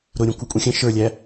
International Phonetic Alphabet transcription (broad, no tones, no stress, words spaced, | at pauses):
ɾʊɾʲə̃kʷʌ kʷʼĩxʲə̃ ʃə˞lʲæ